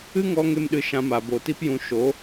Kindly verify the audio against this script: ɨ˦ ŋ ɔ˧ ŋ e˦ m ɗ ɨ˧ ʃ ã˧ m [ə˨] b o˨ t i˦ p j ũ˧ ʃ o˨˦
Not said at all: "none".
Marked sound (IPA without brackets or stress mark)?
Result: a˨